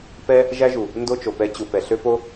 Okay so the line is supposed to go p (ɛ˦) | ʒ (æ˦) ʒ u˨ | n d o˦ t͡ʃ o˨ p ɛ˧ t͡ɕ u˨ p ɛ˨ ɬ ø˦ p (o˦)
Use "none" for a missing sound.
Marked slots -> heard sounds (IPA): ɛ˦, æ˦, o˦

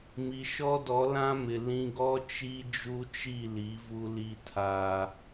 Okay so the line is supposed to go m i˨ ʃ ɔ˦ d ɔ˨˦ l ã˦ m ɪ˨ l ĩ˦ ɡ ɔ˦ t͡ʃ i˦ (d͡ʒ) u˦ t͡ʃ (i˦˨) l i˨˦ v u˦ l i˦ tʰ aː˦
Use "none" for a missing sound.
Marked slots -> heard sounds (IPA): d͡ʒ, i˦˨

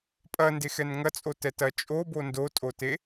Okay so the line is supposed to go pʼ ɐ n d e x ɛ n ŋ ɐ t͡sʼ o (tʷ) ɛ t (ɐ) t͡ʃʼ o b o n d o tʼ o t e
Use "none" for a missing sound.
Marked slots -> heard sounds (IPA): t, ɐ

